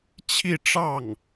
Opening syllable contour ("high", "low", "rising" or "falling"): falling